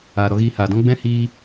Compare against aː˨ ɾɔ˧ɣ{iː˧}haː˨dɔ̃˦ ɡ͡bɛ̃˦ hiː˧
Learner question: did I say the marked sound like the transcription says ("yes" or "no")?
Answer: yes